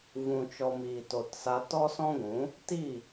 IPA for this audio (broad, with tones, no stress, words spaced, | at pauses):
vũ˨t͡ʃɔ˨ miː˨to˨tsa˧ tɔ˦sɔ̃˦ɡʷũ˨˦ | ti˦˨